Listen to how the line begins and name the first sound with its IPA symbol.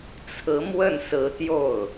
t͡sʰ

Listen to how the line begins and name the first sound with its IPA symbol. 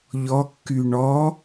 ʎ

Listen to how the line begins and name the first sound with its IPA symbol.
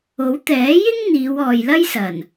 o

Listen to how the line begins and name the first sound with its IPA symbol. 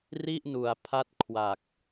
r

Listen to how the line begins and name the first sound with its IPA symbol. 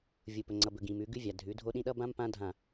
vʲ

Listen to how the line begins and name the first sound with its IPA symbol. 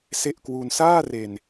s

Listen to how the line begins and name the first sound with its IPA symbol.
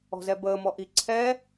ɔ̤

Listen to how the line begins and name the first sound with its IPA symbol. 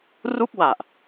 r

